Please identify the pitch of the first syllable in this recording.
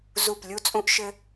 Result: falling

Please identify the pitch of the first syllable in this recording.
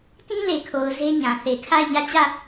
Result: high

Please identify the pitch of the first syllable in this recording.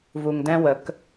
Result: low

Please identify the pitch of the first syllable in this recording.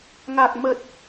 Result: low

